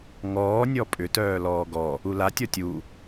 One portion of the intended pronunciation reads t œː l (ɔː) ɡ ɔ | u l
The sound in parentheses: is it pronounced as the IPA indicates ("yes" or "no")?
yes